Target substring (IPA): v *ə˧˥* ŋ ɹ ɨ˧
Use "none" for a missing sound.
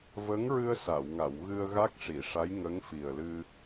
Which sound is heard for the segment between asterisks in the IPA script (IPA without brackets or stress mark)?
ə˧˥